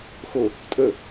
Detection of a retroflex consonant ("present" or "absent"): absent